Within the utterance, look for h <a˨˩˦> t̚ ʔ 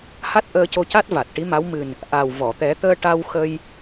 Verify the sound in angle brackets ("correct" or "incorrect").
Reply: incorrect